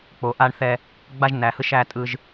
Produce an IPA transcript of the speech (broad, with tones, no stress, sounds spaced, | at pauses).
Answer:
k͡p o˨˦ ʔ a˦ ɳ θ ɛ˦ | ɡ͡b a˦ ʒ n æ˨˦ h ɯ˦ ʃ æ˦ tʼ ɯ˦ ʒ